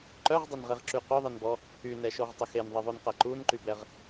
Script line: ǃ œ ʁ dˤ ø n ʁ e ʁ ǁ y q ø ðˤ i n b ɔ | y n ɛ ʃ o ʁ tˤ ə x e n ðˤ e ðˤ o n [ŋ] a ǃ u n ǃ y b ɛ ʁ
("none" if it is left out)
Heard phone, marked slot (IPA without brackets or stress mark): q